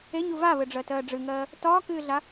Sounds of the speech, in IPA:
e ɲ u v a β ɘ ɖ͡ʐ ɜ t ɜː ɖ͡ʐ ɨ ŋ ɜː | t ɒː k ɨː ɮ a

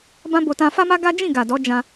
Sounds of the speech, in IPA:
b ã˦ b o˧ t ã˧ f a˦ m a˦ ɡ a˦ d͡ʒ ĩ˦˨ ɡ a˨ d ɔ˨˦ d͡ʒ ã˧

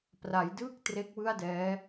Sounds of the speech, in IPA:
p r a˩˦ j d ɯː˥˩ k̚ t r e˦˥ k̚ w ɯ˥˩ a̯ d ɛː˦˥

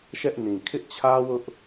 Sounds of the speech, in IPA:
ʃ ɛ˦ ʔ n ĩ˨ kʰ ɪ˦ ʔ t͡ɕʰ ä˦ w ʊ˦ ʔ

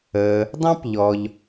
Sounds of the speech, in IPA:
əː˩ | dˤ ɑ̃˥ p ʎ ɔ˩ ʎ

